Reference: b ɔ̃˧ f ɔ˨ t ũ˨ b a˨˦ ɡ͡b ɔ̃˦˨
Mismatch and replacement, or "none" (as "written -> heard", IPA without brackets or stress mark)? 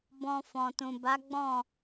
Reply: ɔ˨ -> ɔ̃˨